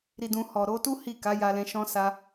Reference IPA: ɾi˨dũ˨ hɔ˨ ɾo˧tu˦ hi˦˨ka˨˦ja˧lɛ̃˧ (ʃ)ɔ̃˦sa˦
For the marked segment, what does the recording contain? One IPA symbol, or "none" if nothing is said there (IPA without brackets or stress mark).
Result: ʃ